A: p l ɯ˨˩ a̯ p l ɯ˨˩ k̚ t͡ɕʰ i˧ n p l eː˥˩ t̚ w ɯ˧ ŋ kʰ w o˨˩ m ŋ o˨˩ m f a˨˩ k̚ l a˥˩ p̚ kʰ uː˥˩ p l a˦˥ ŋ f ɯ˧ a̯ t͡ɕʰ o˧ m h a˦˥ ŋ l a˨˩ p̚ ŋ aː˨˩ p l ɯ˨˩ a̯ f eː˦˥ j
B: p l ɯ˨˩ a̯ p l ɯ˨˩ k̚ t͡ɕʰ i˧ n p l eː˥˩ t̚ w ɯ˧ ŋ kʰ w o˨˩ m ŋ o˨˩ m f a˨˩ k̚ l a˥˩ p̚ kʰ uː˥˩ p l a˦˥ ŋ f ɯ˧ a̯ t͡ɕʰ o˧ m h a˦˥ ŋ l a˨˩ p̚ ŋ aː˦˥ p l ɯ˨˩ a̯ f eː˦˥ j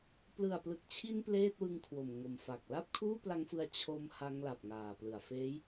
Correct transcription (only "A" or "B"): A